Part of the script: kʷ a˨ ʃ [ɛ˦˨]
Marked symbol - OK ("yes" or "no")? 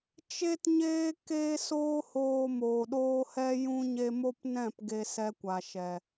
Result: no